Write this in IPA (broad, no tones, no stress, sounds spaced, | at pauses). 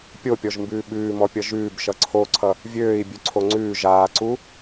pʲ o pʲ ɔ ʒ m b ʉː ɓ ʉː m ɔ pʲ ʌ ʒ ʉː b ʃ ʌ ǀʰ o ǀʰ ʌ | vʲ øː i̯ bʲ ʉ ǀʰ o ŋ͡ǀ ʉː ʒ aː ǀ u